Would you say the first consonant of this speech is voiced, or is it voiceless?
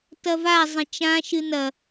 voiceless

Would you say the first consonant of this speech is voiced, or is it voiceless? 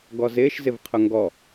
voiced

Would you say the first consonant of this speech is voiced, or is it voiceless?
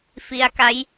voiceless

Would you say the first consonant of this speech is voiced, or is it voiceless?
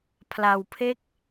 voiceless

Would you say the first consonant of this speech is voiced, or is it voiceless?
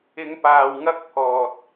voiced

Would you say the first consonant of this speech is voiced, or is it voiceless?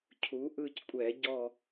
voiceless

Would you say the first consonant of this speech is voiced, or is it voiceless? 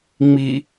voiced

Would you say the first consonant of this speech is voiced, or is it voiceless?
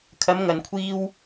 voiceless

